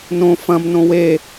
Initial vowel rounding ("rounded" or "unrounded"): rounded